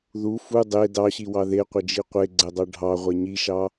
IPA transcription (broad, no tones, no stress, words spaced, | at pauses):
ðu fu dˤe dɑɕiwɑ ðeqʷəd͡ʒi qʷeɡ͡ǀɛdˤɑ ɖʱɑʁʷɛ ɲiʃɑ